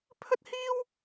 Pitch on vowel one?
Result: high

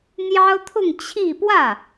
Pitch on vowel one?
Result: high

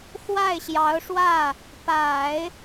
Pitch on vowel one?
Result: falling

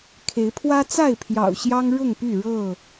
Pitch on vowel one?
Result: rising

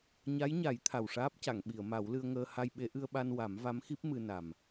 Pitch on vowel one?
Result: rising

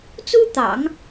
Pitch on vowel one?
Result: high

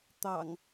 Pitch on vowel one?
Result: low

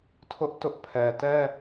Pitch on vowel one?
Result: high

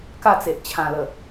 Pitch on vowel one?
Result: falling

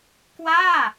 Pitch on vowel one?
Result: falling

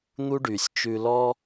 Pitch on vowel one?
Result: high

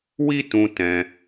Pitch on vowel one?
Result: high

